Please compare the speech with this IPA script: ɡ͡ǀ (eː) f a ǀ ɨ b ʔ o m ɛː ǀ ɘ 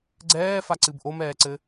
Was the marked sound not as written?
yes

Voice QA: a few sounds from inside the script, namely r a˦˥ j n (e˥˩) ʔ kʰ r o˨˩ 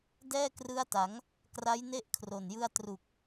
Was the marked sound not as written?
no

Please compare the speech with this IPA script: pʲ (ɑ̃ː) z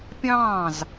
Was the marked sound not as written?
no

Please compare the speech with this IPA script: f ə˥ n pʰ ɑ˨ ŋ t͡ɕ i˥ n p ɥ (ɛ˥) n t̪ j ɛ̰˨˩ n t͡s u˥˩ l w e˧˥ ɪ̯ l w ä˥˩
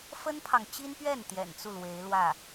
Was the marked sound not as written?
yes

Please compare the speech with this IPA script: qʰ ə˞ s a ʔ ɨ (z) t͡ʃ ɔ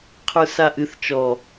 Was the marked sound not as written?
yes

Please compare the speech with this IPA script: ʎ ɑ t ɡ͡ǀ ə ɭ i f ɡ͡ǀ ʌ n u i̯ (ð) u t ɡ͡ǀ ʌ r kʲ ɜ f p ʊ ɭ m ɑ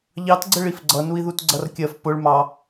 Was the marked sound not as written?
no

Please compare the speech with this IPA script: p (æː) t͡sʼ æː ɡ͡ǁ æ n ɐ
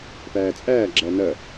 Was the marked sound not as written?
no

